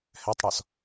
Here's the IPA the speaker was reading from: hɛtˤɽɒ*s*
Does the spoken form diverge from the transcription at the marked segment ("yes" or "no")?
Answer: no